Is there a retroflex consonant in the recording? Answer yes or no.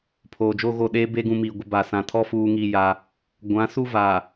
no